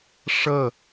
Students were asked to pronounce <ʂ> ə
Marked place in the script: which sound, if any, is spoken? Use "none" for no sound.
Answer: ʂ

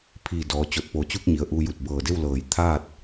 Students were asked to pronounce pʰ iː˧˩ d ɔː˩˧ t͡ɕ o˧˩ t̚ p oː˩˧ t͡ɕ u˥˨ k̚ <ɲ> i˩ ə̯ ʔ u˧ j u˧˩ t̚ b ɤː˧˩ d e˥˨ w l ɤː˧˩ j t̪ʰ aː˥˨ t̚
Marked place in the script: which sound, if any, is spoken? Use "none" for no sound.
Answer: ɲ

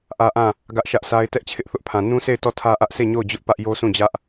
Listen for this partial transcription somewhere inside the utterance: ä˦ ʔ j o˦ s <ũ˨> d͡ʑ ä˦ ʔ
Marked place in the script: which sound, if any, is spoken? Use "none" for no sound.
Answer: ũ˦˨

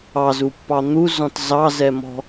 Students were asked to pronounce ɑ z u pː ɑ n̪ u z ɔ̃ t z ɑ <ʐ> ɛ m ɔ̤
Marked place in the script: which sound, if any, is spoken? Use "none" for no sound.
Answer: z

